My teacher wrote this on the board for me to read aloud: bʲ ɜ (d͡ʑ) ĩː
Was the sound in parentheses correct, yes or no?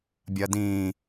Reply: no